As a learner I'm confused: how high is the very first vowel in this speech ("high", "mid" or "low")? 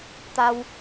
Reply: low